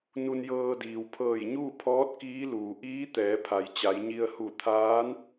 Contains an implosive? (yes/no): no